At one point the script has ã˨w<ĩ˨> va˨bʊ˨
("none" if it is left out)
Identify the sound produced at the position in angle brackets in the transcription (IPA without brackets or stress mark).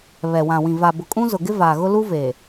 ĩ˨